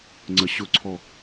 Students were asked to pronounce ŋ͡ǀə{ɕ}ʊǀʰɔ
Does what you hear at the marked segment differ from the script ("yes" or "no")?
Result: no